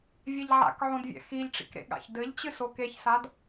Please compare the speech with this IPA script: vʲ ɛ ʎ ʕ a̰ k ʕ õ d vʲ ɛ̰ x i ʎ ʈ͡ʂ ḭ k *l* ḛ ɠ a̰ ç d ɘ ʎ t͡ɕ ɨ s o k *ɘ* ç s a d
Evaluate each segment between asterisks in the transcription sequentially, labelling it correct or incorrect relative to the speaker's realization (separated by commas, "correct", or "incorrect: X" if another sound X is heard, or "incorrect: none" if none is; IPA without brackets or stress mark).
incorrect: ɾ, incorrect: e